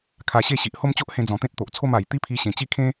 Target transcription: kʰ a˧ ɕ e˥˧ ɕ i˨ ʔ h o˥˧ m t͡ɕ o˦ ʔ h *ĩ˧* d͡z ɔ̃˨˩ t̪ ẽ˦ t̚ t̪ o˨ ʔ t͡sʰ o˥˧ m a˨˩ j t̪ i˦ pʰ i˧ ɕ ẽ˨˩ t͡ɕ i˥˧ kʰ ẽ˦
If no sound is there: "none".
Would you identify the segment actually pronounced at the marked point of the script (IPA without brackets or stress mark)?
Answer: ẽ˧